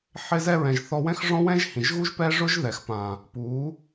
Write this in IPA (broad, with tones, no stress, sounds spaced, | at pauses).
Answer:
ħ ɪ˧ z ɛ˧ ɹ ɛ̃˨ ʒ θ ɔ˧ w ɛ̃˦ x ʐ ɔ̃˦ w ɛ̃˦ ʒ h ĩ˨ ʒ ɣ u˦ ʒ p ɛ˦ ʐ ʊ˦ ʒ ð ɛ˨ x p ã˨ | p u˨˦